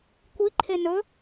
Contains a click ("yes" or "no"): yes